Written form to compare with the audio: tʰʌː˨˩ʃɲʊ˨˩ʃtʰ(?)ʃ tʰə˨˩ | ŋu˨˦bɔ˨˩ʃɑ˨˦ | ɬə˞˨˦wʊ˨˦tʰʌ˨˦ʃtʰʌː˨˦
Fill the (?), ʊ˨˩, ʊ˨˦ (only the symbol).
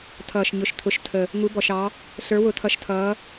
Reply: ʊ˨˦